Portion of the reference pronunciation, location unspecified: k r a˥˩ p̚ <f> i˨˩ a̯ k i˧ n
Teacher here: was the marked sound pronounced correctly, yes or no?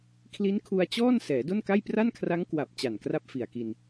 yes